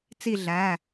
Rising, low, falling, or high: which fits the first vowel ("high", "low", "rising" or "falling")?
falling